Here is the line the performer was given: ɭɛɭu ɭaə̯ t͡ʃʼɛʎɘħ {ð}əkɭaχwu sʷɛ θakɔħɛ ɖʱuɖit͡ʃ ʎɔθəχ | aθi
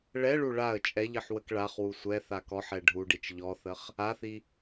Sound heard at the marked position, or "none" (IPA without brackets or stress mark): w